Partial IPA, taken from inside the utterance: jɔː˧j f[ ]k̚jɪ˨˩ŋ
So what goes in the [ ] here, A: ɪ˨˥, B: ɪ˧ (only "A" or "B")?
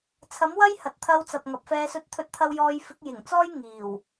A